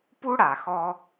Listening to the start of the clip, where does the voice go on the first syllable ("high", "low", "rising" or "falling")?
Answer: high